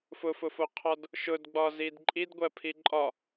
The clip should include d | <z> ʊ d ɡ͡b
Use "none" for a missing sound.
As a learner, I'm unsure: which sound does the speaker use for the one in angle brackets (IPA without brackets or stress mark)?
ʃ